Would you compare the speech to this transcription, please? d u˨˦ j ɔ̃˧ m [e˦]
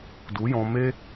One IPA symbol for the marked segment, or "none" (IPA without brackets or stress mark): e˦